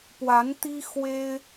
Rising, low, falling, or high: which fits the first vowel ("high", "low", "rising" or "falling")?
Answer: rising